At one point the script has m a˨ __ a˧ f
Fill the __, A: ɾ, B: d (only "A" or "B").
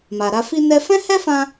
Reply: A